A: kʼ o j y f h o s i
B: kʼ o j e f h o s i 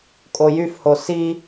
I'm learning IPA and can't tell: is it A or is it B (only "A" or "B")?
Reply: A